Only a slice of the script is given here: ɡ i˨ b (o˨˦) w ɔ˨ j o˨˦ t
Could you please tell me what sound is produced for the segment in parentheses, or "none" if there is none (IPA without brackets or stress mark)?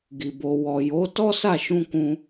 o˨